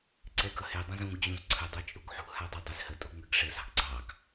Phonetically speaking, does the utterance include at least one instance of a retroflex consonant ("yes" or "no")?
yes